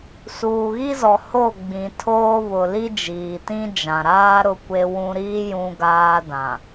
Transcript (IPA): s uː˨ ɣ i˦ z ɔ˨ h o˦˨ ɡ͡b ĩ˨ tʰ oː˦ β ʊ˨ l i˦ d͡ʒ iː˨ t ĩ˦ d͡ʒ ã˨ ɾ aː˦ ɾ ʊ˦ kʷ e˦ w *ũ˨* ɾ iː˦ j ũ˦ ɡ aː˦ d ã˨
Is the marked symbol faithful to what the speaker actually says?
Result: no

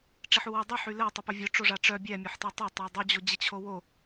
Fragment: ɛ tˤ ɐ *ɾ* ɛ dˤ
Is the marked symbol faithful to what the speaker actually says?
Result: no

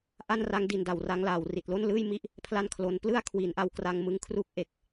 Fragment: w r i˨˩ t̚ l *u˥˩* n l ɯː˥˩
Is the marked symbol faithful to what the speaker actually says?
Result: no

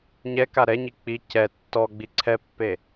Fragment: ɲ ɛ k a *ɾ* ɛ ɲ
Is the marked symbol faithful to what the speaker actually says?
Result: yes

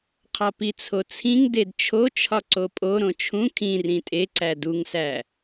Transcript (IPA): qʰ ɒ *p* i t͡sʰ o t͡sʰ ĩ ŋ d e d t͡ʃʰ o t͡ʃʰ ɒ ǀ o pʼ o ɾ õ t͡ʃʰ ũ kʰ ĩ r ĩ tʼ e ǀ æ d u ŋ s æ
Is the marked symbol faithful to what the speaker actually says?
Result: yes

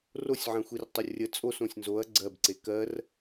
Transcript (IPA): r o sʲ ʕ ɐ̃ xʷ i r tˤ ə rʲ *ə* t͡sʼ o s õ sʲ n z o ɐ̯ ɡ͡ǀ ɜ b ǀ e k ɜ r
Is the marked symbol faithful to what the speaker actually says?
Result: yes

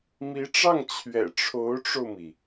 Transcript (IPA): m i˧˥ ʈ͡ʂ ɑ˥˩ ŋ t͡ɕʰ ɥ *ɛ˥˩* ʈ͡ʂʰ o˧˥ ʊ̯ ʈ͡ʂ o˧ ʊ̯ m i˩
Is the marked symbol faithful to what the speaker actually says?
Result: no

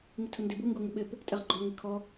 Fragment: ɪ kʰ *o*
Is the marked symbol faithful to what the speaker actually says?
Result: no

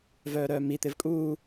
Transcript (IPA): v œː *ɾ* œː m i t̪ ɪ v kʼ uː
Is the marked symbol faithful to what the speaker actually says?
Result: yes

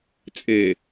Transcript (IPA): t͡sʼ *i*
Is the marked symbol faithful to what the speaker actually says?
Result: no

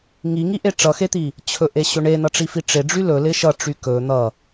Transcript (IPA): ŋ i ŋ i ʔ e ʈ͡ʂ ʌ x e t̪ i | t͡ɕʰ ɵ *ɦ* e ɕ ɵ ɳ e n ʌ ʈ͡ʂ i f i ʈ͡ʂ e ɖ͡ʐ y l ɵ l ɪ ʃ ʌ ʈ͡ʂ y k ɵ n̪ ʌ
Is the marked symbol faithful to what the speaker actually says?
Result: no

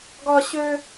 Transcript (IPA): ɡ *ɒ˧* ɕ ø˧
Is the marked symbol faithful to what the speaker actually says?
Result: yes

